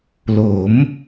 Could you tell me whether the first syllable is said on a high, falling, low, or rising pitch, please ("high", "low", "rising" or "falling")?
rising